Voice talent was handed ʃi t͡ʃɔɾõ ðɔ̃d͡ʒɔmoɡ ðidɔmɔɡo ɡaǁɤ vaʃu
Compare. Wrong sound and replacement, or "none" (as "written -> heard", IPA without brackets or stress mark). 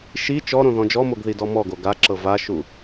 none